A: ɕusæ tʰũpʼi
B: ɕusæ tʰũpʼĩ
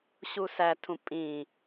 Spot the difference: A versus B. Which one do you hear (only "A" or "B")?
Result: B